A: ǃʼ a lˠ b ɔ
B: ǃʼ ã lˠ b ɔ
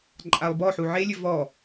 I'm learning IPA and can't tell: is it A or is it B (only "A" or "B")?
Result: A